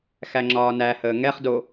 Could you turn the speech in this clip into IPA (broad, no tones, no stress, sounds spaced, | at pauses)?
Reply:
x æ ŋ͡ǁ ɒː n æ h əː ŋ ɛ χ d o